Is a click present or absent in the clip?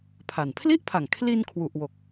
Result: absent